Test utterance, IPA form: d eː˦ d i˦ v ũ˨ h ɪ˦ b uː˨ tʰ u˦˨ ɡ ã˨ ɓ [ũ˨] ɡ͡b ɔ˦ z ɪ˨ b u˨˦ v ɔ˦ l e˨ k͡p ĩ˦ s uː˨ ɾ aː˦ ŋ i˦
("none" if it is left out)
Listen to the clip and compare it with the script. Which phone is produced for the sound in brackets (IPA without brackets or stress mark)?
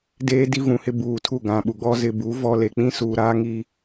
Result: u˨